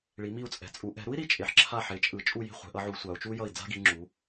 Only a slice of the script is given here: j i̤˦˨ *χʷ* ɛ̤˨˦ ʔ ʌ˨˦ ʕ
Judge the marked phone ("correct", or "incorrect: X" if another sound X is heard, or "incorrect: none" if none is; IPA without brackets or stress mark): correct